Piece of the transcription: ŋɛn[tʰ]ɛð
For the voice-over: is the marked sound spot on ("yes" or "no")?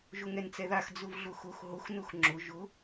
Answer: no